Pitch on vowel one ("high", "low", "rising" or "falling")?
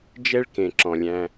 high